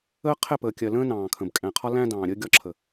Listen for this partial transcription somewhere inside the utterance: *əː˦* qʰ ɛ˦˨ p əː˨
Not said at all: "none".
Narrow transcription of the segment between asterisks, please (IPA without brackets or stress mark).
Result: əː˦